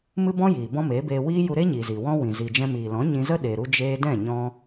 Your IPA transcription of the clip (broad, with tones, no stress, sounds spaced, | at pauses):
m ɨ˦ b ɔ̃˦ j iː˨ b ɔ̃˦ m eː˨˦ b eː˧ w iː˦ j u˧ ɾ e˦ ɲ iː˨ z iː˨ w ɔ̃˦ w ĩ˧ z i˨ d͡ʒ ɛ̃˧ m iː˨ l ɔ̃˨˦ ɲ ĩ˧ z ə˦ ɗ e˨ ɾ u˧ d͡ʒ eː˧ d ɛ̃˦˨ ɲ ɔ̃˦